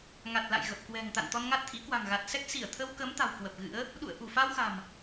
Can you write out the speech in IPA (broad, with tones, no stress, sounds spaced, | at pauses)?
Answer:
ŋ a˨˩ t̚ l a̰˧˨ j ɣ ə˨˩ p̚ k w ɛ̤˨˩ ŋ t̪ a̰˧˨ n t̪ ɔ˧ n ŋ a˦˥ t̚ t̪ʰ ḭ˧˥ k w a̤˨˩ ŋ ɣ a˨˩ t̚ s ɛ˦˥ k̚ s i˧˩ ə̯ t̪ʰ ə˧ w k ə˨˦ m t̪ a̤˨˩ w k w ə˨˩ p̚ ɣ ɨ̰˧˥ ə̯ | ɗ ṵ˧˨ ə̯ ʔ u˧˩ f a˧ w x a̤˨˩ m